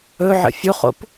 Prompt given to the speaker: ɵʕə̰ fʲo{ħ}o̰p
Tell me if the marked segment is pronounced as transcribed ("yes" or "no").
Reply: no